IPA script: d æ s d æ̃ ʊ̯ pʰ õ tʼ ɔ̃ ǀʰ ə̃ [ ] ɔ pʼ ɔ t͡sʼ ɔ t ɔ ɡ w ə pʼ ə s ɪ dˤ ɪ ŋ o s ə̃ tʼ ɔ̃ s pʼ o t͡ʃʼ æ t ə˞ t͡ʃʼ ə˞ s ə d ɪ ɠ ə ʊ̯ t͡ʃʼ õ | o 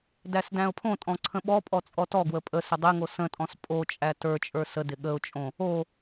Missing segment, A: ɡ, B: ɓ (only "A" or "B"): B